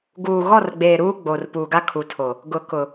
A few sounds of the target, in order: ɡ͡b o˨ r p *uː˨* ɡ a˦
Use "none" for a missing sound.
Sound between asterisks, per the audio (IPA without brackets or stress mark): uː˨